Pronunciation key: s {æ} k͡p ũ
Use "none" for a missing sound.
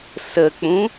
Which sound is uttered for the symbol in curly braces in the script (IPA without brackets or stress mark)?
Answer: ə